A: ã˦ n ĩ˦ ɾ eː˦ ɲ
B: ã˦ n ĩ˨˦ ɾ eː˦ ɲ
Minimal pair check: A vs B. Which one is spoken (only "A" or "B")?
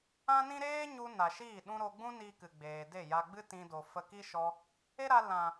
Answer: A